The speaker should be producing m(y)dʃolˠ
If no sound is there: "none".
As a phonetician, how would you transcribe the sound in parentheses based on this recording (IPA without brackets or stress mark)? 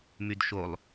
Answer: y